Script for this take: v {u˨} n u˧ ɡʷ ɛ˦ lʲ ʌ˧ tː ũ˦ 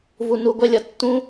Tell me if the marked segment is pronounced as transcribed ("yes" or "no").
yes